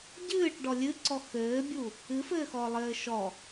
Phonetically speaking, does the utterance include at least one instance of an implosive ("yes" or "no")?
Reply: no